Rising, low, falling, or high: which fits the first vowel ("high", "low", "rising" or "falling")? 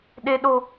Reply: high